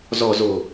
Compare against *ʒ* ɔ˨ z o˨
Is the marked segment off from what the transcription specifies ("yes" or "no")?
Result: yes